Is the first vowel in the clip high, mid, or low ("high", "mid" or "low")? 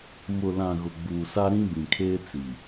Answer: high